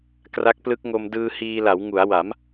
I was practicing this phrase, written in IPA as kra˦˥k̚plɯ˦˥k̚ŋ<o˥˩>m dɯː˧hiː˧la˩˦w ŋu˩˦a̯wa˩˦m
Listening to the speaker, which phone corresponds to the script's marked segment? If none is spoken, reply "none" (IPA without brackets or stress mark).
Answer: o˧